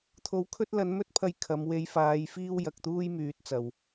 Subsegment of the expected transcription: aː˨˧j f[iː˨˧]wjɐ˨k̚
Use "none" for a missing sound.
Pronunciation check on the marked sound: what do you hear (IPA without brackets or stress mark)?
iː˥